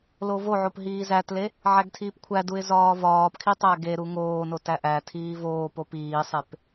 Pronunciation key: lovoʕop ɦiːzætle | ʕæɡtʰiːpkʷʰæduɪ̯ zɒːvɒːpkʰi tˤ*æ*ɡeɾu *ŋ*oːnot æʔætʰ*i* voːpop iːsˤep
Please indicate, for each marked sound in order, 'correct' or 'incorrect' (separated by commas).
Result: correct, correct, incorrect